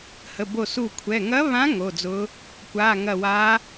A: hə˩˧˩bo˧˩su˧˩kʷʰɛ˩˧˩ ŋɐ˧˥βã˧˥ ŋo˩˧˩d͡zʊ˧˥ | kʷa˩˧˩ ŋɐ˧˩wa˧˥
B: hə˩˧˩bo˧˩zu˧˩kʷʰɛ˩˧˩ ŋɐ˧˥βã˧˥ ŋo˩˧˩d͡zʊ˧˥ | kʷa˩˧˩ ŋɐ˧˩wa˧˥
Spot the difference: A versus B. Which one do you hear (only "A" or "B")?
A